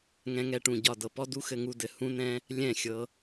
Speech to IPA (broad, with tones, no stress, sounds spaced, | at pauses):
ŋ ɛ̃˧ ŋ ɛ˦˨ ʈ ũ˦˨ ɟ ɒ˦˨ d ɤ˨ p ɔ˦ d u˦ x ɘ˧ ŋ u˧ d ɘ˨ h ũ˧ n ɛ̃˧ | lʲ ɛ̃˦˨ xʲ ɤ˧